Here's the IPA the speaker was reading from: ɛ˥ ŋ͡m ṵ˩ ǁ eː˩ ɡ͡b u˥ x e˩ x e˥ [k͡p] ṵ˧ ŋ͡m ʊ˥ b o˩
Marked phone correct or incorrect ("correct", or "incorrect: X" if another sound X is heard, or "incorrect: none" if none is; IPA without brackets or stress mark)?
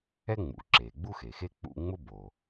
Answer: correct